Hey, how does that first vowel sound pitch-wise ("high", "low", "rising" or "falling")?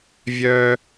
high